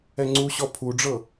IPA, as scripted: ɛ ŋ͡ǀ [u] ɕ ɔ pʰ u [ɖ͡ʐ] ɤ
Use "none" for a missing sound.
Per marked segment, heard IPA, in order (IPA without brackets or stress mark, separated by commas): u, ɖ͡ʐ